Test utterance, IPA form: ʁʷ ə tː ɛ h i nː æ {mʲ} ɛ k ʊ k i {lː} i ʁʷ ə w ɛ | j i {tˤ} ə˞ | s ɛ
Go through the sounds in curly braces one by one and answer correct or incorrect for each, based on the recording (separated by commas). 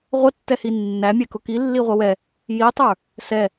correct, correct, correct